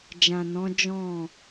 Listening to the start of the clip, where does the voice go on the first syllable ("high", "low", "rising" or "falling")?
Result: low